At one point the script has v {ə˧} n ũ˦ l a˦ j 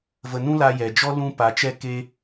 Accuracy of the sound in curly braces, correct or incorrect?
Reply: correct